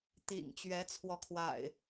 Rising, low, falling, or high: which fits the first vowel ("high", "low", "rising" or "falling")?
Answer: low